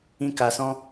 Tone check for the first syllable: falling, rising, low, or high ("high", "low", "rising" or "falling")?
high